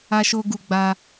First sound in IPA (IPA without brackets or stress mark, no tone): a